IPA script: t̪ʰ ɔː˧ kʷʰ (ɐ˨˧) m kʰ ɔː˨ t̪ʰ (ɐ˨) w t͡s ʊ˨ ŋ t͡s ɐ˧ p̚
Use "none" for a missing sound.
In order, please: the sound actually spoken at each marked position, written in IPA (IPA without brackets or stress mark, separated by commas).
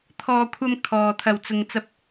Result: ɐ˧, ɐ˨